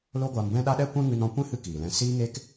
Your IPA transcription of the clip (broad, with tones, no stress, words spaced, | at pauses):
lo˦ɡʷa˧mbɛ̃˦ɗa˦ ɗɛ˦kʷɛ̃˦ŋɨ˧n ɔ̃˧kʷɛ̃˦ hɨ˦kiː˨lɛ̃˧ siː˦ŋe˦k